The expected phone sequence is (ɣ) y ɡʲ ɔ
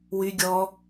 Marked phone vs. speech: incorrect: w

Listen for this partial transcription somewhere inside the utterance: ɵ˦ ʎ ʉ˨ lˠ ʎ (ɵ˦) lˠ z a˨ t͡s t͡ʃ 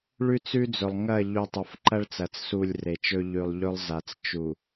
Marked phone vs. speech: correct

